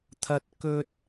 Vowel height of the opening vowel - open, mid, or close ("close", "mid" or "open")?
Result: open